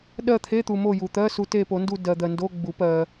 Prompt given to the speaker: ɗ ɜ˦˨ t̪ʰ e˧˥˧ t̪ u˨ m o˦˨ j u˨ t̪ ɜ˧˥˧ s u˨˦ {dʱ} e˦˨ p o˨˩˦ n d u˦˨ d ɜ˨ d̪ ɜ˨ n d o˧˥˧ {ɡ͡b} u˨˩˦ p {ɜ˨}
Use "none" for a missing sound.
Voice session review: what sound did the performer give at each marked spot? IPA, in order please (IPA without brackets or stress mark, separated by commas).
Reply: t, ɡ͡b, ɜ˨